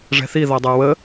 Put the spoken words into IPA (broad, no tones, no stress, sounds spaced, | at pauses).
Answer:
ʐ ɛ̤ θ i ð ɔ dˤ ə˞ w ə